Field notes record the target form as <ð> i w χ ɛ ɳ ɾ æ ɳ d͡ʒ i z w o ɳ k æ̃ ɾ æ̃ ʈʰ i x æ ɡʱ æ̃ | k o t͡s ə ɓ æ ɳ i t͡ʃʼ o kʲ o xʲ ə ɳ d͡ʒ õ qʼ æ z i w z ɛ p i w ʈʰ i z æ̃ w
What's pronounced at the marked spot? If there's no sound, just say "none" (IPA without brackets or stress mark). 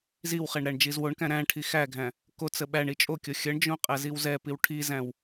z